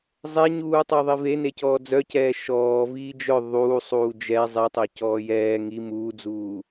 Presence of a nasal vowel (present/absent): absent